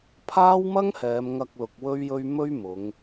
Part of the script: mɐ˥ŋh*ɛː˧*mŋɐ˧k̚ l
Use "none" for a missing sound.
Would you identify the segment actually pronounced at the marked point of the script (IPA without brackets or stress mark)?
ɛː˨˧